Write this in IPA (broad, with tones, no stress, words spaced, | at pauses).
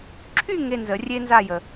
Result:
ǁʰy˥˧ ŋe˧˥˧nzə˨˩˦rʲe˥nza˥˧ jə˨